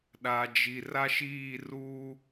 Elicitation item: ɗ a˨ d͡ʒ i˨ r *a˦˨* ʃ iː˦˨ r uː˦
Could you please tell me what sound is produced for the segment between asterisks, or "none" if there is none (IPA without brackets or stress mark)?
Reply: a˦